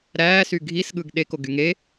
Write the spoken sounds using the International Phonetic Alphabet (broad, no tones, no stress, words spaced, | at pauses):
ɾæːsy ɡʱisɠɯɡ ɗekoɡy ŋe